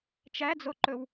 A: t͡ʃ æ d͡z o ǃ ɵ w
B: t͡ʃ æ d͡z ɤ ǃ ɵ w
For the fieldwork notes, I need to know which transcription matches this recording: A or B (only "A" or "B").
A